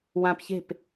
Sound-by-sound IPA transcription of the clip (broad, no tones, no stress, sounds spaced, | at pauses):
w ã p ç e̤ p